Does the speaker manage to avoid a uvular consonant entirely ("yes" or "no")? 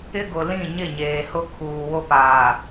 yes